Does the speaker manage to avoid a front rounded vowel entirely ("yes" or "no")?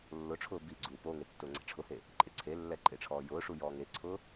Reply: yes